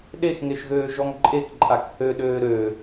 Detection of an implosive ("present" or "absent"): present